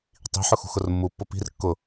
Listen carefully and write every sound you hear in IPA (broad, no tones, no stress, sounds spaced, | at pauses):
tˤ i̤ ħ ʊ x ṳ x ʊ r mː u pː ʊ p i̤ r kː ʊ